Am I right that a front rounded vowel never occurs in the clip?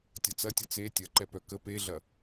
no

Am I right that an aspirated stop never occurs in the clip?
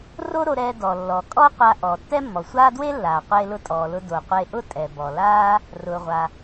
yes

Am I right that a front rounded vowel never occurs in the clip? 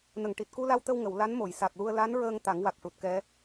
yes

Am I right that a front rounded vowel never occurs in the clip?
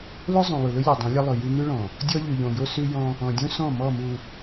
yes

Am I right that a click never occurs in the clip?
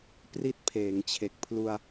yes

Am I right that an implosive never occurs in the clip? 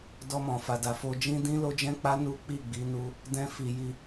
yes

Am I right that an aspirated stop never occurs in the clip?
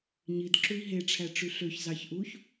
no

